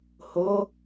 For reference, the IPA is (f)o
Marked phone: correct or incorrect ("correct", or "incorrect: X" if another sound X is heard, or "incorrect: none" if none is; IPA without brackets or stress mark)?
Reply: incorrect: h